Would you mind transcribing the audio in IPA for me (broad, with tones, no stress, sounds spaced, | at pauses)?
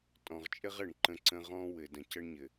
tʼ ɔ̃˨ ʁ t͡ʃʼ ɘ˦ ʁ ɘ˨ ɳ ǃ ə̃˦ ǀ ə̃˦ ʁ ɔ̃˦ w ɘ˨ d ə̃˨ c ə˦ ɳ ɲ ɘ˨